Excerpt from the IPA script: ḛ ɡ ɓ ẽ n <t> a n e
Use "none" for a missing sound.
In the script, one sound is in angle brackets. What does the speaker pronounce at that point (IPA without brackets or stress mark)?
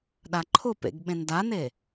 d